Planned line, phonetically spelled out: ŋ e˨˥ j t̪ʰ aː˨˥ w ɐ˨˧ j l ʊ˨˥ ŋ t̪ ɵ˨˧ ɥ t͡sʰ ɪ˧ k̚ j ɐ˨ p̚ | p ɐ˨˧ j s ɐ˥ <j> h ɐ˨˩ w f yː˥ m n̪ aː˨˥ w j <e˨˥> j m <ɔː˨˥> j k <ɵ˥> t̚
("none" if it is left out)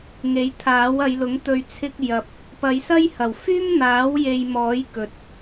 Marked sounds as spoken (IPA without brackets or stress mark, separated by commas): j, e˧, ɔː˨˥, ɵ˨